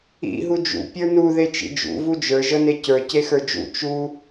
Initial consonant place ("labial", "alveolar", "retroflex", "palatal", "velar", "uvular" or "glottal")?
glottal